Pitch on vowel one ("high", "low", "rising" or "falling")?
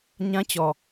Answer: high